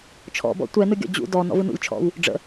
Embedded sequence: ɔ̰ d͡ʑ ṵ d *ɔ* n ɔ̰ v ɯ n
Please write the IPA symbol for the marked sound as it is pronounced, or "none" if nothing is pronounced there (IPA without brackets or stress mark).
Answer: ɔ